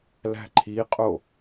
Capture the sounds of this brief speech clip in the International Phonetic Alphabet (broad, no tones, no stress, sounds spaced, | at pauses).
l æ̤ ǃʰ i qʼ o